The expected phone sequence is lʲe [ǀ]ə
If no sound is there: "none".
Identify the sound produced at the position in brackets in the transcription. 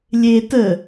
t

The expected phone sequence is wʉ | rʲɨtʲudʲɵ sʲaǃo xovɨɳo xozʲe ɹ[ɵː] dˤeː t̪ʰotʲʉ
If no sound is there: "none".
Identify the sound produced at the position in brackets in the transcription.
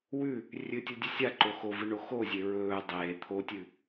ɵː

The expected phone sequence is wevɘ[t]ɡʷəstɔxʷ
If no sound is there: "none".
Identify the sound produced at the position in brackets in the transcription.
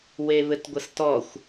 t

